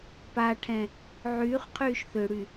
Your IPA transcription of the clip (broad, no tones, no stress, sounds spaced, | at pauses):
p a ʈʰ ɛ̃ | ʕ yː χ qʰ yː ʃ θ ø ɽ y